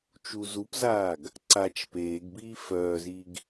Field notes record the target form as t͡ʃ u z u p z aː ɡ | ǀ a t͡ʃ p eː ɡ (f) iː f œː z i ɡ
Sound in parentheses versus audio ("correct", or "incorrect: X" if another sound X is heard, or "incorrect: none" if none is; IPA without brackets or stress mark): incorrect: b